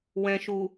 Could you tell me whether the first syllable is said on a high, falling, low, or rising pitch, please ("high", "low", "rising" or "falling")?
low